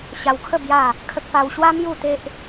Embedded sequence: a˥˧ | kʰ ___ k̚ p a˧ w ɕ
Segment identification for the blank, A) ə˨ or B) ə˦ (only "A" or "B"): B